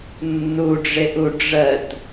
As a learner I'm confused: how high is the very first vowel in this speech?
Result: high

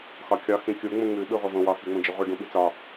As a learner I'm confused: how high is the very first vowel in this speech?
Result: low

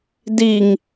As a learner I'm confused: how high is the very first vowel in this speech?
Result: high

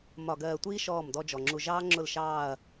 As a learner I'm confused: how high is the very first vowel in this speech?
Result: low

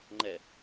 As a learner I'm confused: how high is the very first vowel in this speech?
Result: mid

